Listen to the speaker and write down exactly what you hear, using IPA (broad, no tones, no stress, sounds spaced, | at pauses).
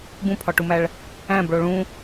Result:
b ũ pʰ ɒ ʈ u m æ ɭ | æ̃ b ɭ o ɭ ũ